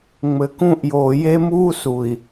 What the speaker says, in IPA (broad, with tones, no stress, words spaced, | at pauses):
ŋ͡mɘ˨kũ˦˨ʔjoː˨ je˦muː˦su˨i̯